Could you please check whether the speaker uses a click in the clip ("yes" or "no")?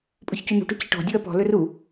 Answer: no